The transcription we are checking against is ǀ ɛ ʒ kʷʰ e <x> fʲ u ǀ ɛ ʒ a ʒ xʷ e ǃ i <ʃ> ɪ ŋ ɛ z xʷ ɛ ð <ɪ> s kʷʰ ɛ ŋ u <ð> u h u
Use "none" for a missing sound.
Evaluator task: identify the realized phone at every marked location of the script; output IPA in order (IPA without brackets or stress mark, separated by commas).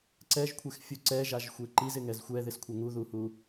x, z, ɪ, ð